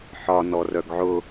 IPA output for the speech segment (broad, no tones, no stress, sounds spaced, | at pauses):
ħ ɒ n ɔ r œ ɡ ʕ ʊ